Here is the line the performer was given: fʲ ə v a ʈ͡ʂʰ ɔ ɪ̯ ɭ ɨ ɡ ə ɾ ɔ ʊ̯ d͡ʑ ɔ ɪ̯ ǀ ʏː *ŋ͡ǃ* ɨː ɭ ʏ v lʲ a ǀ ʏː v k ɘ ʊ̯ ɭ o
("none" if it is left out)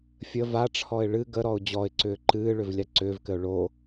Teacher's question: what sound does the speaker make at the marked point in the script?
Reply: ǃ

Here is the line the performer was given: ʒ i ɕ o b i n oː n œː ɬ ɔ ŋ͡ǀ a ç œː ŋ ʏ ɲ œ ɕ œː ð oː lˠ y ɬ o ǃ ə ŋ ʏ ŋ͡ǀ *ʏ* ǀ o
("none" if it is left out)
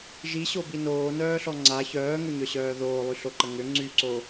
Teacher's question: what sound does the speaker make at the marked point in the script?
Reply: y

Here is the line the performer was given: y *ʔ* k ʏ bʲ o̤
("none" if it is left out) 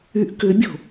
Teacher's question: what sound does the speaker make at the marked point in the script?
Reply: ʔ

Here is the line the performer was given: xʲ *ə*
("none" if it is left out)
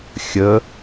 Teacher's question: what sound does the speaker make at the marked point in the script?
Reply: ə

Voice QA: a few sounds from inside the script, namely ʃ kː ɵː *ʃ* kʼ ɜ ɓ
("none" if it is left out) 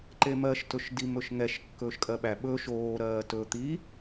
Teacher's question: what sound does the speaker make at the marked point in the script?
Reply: ʃ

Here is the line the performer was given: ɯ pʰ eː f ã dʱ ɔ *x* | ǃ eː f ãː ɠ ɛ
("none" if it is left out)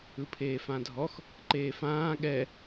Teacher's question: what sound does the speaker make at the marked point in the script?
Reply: x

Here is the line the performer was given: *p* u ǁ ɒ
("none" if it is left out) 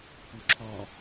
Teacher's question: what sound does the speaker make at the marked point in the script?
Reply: p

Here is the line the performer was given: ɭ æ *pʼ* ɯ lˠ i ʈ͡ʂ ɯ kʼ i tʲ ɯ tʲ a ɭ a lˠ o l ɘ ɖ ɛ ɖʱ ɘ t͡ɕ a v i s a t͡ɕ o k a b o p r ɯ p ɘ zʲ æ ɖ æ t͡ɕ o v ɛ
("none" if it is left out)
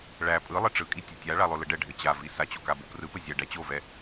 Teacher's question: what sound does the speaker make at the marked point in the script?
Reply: pʼ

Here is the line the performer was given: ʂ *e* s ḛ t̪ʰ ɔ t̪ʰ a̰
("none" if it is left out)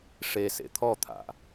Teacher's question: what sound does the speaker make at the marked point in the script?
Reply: e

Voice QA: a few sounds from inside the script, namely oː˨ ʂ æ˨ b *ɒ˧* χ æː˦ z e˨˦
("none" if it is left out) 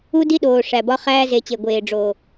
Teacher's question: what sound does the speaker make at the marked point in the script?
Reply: ɒ˧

